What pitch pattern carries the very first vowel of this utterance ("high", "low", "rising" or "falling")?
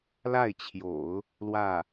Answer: falling